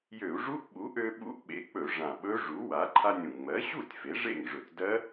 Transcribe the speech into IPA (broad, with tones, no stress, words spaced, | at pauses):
jø˧˩˧u̯ʐu˦˥ʔɓu˩˥ ʔø˧ɓṵ˦˥ʔɓḛ˩˥k͡pɵ˧˩˧ ʐã˨˩ɓɵ˦˥ ʐu˩˥wa˩˥ ǃʰa˧nʲũ˨˩ ŋ͡mɜ˩˥ɕu˥˩tʲ fe˩˥ʐḛ˥˩ŋʐɵ˧˩˧t dɜ˦˥